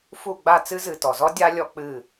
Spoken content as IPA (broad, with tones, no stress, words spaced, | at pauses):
fu˦˨ɡ͡ba˦˨ t͡sɨ˦zɨ˨ tɔ˨zɔ˦ dʲa˦ lʲɔ˦ k͡pɨ˦˨